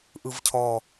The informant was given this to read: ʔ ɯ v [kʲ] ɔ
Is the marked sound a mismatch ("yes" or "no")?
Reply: yes